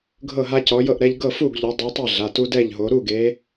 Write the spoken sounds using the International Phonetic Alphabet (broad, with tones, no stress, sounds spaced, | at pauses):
ɡʱ ɤ˥˨ ɦ a˦ c ɔ˨˦ j ɤ˥˨ ʔ ɾ ɛ˦ ʎ ɡ ɤ˥˨ f u˥˨ ɡ ʎ o˨˦ dˤ ɯ˨˦ tˤ i˥˨ ɮ a˩˧˩ t u˦ d ɛ˥˨ ʎ ɦ o˨˦ ɾ u˥˨ ɡ e˨˦